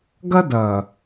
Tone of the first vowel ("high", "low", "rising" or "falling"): high